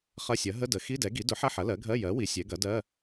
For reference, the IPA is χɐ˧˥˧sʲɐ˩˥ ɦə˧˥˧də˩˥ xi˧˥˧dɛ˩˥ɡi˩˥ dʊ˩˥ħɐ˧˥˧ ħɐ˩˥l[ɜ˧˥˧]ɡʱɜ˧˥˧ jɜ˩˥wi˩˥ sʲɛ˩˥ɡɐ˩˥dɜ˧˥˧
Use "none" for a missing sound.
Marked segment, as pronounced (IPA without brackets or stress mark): ɜ˩˥